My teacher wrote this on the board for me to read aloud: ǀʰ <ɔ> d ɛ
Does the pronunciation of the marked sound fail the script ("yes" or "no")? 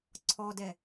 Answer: no